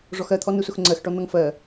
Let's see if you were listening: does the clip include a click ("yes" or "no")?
yes